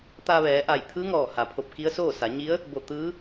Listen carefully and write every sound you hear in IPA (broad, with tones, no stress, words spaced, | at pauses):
t̪a˧ʋɛː˩˧ ʔa˧˩jt̪ʰɯː˧˥ŋɔː˧˩ha˩ pʰo˧˩p̚ki˧˥ə̯soː˥˨sa˩˧ ɲi˧˥ə̯ | bo˧˩ t̪ɯː˧˥